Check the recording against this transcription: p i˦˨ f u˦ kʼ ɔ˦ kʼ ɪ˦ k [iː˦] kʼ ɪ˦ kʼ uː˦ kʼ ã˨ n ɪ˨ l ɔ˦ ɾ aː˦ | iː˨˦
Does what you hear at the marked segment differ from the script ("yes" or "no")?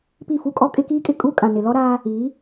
no